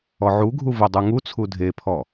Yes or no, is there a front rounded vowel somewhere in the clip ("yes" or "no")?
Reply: no